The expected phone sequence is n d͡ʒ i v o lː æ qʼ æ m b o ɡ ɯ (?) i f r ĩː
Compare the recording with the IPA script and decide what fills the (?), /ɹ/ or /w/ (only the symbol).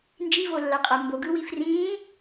w